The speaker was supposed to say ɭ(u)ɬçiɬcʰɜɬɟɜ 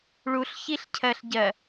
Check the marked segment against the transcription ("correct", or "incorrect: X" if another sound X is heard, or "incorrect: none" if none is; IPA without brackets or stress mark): correct